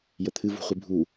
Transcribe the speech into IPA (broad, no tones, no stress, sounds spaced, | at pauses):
j ə t̪ʰ ɨ v ṳ χʷ i bʱ u